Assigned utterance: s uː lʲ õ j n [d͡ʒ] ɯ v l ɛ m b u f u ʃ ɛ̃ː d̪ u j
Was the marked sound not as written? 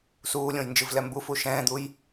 no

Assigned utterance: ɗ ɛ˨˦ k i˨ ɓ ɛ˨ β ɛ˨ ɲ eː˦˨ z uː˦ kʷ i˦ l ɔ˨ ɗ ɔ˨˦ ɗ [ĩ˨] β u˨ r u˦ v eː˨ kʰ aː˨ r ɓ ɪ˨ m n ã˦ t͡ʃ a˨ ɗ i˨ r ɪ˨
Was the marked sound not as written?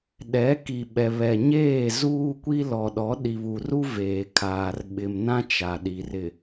yes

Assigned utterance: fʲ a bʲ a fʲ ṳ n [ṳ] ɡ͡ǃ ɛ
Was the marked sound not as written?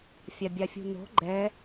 yes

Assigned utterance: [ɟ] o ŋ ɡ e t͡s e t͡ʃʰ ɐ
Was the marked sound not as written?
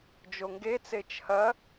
yes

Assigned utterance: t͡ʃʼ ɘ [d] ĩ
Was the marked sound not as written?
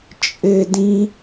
no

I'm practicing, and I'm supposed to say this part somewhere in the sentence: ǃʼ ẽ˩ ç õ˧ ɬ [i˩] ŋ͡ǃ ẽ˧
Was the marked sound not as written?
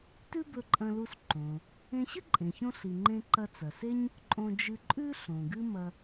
no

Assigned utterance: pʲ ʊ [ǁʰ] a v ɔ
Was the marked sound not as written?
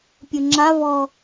yes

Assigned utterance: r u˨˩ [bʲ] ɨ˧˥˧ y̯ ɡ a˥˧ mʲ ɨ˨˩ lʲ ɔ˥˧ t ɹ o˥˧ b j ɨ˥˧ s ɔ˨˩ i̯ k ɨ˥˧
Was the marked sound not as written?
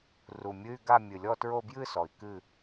yes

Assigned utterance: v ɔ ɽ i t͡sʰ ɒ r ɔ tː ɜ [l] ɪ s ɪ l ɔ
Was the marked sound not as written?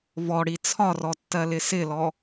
no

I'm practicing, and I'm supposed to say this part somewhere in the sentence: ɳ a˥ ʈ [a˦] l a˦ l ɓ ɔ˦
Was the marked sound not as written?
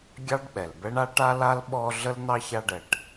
no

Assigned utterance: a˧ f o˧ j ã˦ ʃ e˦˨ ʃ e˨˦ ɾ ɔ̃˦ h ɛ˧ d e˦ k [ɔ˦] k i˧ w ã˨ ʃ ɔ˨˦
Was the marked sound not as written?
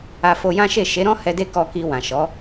yes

